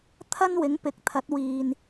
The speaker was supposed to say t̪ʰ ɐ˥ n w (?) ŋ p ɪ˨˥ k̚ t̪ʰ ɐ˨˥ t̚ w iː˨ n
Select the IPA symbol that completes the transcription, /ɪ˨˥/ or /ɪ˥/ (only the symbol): ɪ˨˥